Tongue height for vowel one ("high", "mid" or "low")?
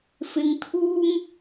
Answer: high